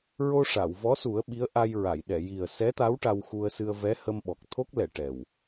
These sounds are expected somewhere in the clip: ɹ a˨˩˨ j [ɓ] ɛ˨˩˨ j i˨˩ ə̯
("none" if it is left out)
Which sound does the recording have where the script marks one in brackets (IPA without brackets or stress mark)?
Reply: ɗ